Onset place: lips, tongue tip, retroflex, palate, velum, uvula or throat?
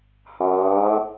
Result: throat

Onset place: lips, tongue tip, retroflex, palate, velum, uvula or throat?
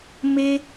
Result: lips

